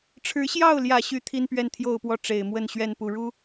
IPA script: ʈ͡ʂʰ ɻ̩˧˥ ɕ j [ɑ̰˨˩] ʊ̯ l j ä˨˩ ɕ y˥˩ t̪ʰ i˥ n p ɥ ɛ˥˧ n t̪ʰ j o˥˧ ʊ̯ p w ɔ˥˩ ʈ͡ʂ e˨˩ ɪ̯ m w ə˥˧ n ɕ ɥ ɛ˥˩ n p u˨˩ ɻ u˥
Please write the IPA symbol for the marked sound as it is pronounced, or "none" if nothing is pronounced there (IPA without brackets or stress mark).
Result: ɑ˥˩